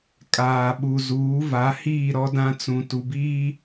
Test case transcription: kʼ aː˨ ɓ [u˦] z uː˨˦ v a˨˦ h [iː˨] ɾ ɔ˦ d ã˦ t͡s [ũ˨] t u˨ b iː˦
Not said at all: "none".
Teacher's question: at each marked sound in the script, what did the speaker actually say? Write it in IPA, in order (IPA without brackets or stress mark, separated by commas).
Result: u˨, iː˦˨, ũ˨